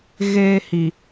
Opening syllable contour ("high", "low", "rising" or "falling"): high